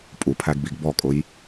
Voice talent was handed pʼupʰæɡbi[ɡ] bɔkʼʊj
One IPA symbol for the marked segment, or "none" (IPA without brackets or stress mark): ɡ